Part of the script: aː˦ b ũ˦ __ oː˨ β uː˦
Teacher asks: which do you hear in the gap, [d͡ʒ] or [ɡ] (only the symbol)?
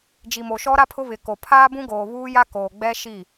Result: ɡ